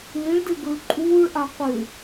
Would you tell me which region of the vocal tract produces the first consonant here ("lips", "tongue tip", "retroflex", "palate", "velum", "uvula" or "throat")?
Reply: retroflex